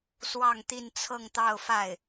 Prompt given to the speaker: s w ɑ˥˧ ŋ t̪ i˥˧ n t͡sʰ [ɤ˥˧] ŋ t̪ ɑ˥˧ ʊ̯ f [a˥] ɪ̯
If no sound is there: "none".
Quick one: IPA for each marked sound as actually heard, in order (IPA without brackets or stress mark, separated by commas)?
ɤ˥˧, a˥˩